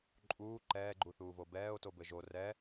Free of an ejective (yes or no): no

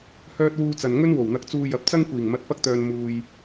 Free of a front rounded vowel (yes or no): no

